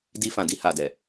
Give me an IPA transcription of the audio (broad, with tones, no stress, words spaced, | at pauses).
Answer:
di˧fã˨di˧ ha˨dɛ˨